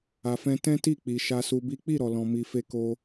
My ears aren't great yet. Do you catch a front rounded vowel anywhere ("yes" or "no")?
no